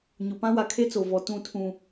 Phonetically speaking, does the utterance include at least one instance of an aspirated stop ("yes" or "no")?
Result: yes